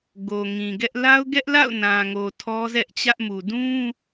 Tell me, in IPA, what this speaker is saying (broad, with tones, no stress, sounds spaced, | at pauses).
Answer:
ɡ o˨ ŋ ĩ˨ ɡ ɛ˦ ʔ l a˦ ʊ̯ ɡ ɛ˦ ʔ l a̰˦˨ ʊ̯ n ã˨ ŋ o˨ tʰ ɔ˦ z ɛ˦ ʔ t͡ɕ ä˦ ʔ m u˨ d ũ˦